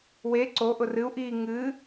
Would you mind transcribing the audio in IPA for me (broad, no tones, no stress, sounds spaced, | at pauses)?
w e ǀ o ʔ ʊ r ɨ u̯ ʔ iː ŋ ɨ